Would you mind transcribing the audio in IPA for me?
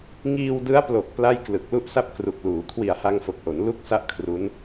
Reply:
ŋ iː˧ w d ɯ˦˥ a̯ p l o˨˩ k̚ p l a˥˩ j k l ɯ˨˩ k̚ l u˥˩ ʔ s a˥˩ p̚ k r u˨˩ k̚ l uː˩˦ kʰ w i˨˩ a̯ h a˧ ŋ f o˨˩ k̚ ʔ o˩˦ n l u˥˩ k̚ s a˥˩ ʔ kʰ r u˦˥ n

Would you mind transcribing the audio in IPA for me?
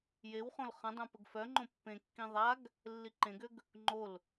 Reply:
j e w χ õ l χ ə̃ dˤ œ̃ p ə ɡ f œ ŋ͡ǃ õ pː ẽ kː ĩ ðˤ a ɡ | lː i ǃ ẽ ɡ ø ɡ | ŋ͡ǃ o l

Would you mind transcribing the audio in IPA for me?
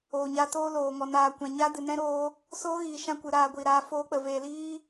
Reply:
oː˨ ɲ a˧ t oː˦ l oː˨ ŋ ɔ˨ n aː˨ kʷ ã˨ ɲ a˦ d ɨ˨ n ɛ̃˦ ɾ oː˧ | s oː˦ ɣ iː˨ ʃ ã˧ kʷ ɨ˨ ɾ aː˧ ɡʷ iː˨ ɾ aː˨˦ f oː˧ k͡p ə˨ v eː˨ l iː˦

